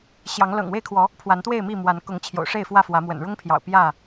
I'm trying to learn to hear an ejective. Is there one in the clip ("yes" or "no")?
no